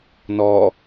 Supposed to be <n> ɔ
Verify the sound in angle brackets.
correct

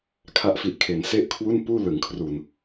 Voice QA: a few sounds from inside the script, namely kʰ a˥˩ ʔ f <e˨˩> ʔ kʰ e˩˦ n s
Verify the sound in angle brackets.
incorrect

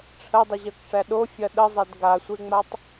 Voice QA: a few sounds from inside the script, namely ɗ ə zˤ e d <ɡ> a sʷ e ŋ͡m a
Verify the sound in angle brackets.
correct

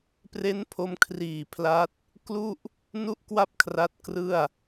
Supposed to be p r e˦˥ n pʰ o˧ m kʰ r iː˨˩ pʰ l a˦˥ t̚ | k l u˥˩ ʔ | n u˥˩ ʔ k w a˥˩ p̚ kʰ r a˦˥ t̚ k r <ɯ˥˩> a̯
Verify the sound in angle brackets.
correct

